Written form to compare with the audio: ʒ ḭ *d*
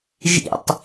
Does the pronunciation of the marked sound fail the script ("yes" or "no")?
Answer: yes